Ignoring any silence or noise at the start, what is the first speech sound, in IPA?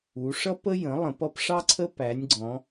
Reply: u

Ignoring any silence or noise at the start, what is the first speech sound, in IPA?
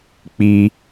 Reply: k͡p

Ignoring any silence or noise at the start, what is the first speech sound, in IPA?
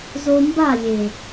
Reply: z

